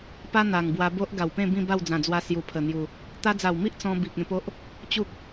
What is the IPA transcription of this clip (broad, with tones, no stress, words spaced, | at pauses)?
pa˦ n̪a˨˩ŋbwa˧bo˦ʔ ɡa˨˩wpẽ˥˧ bĩ˥˧ ba˥˧wd͡zã˨˩d͡zwa˧ sju˨˩pʰə˨˩n̪ju˨˩ | t̪a˧d͡za˨˩wmi˦ʔ t͡sɔ̃˧ bi˨k̚ ẽ˧po˦ʔ | t͡ɕu˦k̚